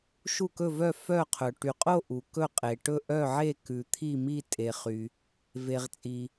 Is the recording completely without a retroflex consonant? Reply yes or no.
no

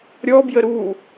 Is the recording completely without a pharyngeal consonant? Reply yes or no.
yes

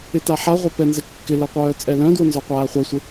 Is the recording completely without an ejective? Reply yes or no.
no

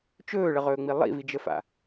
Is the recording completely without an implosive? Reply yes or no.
yes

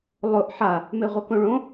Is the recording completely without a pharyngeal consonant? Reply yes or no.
no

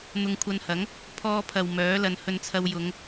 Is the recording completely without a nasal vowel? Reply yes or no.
yes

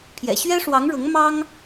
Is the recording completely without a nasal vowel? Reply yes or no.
yes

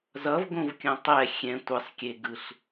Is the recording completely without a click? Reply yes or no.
yes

